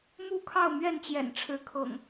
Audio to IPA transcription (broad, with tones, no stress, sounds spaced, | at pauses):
m u˥˨ kʰ ɑ˥˨ ʊ̯ m ɥ ɛ˥˨ n t͡ɕ j ɛ̰˨˩ n ʈ͡ʂʰ ɻ̩˨˦ kʰ ɤ̰˨˩ ŋ